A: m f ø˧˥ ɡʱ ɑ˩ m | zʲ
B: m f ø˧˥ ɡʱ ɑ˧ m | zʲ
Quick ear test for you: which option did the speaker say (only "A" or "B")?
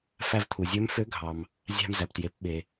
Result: A